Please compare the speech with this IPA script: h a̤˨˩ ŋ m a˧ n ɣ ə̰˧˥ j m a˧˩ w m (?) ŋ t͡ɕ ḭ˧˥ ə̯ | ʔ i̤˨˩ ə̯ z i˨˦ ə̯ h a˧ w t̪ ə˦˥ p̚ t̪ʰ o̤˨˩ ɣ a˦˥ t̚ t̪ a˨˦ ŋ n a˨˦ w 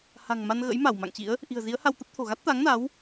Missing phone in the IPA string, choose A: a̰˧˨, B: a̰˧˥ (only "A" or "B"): A